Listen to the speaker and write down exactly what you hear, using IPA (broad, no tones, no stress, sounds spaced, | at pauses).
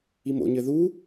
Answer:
i m o̰ ɲ ɘ ð u